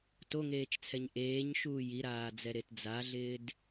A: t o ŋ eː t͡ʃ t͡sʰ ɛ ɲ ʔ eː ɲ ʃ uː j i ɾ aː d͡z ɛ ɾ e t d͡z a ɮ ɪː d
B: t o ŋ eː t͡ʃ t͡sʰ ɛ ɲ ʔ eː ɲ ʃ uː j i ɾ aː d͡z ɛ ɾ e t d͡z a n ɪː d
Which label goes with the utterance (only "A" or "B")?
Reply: A